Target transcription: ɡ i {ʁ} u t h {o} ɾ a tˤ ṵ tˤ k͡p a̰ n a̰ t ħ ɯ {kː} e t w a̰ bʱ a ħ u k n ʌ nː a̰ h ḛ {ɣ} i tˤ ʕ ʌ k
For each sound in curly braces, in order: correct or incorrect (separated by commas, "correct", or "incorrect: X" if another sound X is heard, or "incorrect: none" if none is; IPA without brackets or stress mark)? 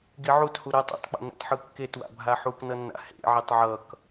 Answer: incorrect: ʕ, incorrect: u, correct, incorrect: ʕ